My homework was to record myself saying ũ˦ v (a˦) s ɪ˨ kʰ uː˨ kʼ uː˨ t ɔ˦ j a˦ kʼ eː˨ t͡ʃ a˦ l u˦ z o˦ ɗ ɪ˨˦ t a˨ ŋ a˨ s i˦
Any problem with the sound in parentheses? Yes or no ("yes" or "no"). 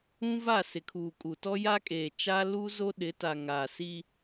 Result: yes